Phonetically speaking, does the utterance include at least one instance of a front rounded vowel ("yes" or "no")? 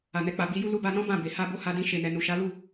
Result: no